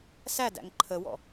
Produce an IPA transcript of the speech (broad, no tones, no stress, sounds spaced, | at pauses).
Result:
s æ d æ̰ ŋ ǃʰ ə w ɔ̰